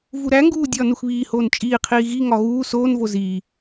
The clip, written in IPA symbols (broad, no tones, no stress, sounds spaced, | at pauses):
v u ɾ æ ŋ ɡ uː dʲ ɒː n u x β iː h oː n t͡ʃʼ iː qʰ iː ɣ i ŋ ɒ ɣ uː s oː n v o z iː